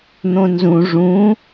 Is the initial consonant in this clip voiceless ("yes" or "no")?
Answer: no